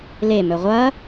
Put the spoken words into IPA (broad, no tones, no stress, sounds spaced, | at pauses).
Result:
l e m ɵ ʁʷ ɐ